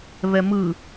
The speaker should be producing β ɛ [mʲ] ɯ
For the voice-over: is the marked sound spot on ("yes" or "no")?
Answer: no